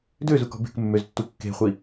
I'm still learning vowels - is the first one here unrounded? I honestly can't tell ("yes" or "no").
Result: no